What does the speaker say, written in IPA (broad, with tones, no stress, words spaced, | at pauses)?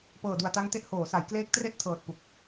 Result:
pɤː˨˩du˨˩a̯ta˦˥ŋte˦˥ʔ hoː˩˦sa˩˦j kleː˦˥k̚tre˥˩ʔ tʰɤː˨˩t̚ pu˨˩k̚